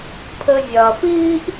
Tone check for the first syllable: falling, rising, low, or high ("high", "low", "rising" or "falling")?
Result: low